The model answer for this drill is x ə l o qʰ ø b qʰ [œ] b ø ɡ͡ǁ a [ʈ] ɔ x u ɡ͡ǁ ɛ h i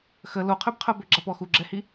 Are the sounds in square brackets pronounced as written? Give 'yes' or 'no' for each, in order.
yes, no

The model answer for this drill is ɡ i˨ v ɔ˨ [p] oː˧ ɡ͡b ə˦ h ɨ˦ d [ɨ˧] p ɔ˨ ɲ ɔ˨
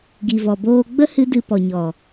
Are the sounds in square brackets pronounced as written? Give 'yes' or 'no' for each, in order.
no, yes

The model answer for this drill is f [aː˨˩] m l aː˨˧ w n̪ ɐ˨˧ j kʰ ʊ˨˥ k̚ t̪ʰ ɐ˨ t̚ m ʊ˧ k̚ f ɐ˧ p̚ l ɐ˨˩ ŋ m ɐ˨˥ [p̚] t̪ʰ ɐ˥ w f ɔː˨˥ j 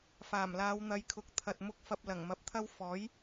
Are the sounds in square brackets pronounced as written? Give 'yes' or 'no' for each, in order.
yes, yes

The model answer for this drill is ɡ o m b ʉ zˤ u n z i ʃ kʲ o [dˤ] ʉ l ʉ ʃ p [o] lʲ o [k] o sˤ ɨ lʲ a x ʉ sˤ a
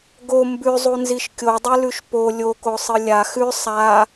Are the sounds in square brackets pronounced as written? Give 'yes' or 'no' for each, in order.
yes, yes, yes

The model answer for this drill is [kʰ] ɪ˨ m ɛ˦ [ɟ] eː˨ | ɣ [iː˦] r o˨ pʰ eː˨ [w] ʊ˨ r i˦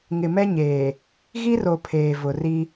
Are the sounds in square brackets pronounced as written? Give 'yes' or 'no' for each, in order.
no, no, no, no

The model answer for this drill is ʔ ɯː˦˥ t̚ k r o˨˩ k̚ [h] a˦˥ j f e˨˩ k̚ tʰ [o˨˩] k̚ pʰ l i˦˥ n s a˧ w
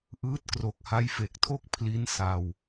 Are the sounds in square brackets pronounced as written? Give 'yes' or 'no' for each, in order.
yes, no

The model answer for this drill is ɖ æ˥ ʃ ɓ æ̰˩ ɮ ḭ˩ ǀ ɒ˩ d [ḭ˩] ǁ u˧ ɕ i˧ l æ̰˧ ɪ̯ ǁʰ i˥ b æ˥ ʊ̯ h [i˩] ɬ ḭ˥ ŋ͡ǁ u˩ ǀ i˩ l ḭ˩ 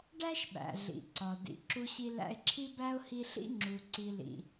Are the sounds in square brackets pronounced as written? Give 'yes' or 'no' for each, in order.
yes, no

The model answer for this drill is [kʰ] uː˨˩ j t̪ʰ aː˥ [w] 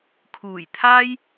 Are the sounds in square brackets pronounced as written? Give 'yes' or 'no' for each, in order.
yes, no

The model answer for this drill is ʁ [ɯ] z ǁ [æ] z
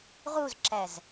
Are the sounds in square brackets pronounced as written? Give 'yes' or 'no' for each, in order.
no, yes

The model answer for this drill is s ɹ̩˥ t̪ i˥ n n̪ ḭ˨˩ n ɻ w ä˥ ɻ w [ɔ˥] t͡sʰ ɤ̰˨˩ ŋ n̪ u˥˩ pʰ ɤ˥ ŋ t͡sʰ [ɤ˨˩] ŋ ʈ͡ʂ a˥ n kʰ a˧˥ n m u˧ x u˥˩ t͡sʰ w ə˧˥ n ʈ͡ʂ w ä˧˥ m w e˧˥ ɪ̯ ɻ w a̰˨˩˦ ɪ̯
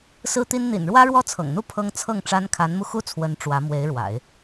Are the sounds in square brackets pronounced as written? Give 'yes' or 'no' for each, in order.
yes, no

